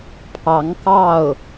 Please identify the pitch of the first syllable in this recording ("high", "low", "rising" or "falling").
rising